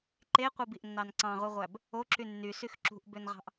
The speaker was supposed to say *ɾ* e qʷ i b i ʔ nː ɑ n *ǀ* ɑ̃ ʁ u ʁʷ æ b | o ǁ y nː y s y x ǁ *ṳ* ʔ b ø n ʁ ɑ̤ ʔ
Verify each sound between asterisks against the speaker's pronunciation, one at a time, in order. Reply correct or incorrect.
incorrect, correct, correct

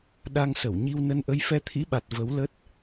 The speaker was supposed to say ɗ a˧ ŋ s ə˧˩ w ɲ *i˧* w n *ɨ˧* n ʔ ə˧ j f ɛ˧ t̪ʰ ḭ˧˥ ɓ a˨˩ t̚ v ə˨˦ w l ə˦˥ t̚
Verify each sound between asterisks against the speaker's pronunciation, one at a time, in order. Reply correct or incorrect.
correct, incorrect

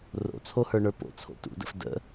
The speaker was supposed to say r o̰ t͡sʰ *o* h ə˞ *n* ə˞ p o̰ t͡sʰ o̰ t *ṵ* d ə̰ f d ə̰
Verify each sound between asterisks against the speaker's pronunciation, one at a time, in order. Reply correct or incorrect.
correct, incorrect, correct

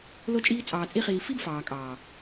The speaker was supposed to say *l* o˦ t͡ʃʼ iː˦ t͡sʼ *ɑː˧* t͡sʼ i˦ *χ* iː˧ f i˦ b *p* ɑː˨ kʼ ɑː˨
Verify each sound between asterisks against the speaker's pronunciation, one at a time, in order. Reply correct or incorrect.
correct, correct, correct, incorrect

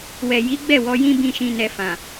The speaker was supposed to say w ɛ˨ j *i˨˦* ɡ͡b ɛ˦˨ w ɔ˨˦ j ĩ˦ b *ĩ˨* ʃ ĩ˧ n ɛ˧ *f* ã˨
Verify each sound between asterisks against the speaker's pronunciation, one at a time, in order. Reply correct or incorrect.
correct, incorrect, correct

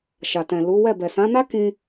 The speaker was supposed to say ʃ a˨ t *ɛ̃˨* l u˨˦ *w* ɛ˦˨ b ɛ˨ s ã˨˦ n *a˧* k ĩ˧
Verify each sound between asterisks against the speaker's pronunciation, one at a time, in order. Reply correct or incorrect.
correct, correct, incorrect

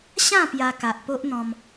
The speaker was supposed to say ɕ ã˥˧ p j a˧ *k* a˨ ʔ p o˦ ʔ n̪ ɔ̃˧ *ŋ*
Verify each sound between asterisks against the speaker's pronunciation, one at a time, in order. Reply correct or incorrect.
correct, incorrect

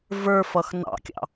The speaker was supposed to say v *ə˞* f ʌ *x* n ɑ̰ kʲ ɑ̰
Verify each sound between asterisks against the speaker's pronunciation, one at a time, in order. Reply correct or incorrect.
correct, correct

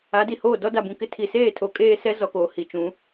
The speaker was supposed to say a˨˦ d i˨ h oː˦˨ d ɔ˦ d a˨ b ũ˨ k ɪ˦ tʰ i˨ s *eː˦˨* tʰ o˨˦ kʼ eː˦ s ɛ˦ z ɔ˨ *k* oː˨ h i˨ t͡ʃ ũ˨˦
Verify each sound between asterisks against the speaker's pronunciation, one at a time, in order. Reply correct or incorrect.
correct, correct

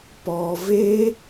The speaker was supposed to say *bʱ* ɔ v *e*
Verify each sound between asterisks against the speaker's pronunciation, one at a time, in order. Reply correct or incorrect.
incorrect, correct

